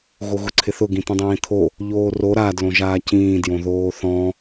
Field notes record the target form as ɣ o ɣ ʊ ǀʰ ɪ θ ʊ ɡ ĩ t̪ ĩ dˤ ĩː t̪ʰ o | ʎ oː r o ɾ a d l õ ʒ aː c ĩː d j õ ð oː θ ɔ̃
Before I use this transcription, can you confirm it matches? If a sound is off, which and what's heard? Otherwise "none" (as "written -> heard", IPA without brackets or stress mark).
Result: none